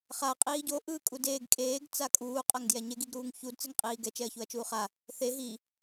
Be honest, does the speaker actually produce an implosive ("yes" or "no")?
no